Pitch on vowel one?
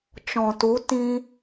low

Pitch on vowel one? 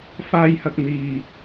high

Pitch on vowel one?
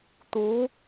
rising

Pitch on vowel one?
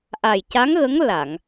low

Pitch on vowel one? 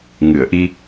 low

